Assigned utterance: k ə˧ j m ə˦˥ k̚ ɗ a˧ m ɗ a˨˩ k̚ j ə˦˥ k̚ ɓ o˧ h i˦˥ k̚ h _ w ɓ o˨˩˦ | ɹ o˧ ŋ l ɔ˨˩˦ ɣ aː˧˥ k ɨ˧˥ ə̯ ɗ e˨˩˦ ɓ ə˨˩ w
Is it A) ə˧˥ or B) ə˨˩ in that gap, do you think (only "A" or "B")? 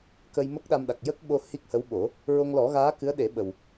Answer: A